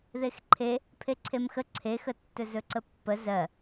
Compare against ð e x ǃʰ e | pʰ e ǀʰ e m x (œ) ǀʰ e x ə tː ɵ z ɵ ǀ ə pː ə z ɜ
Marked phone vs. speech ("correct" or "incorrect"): incorrect